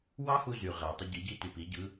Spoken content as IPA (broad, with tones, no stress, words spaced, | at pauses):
wɑ˥hu˧ zy˩ʁæ˩ tˤɯ˧ɟi˩˧ɟi˧ ty˩pi˩˧ ɟɯ˩˧